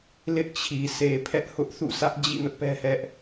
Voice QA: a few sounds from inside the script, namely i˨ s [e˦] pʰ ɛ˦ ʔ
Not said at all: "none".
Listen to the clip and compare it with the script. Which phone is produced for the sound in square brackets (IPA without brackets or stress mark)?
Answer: e˨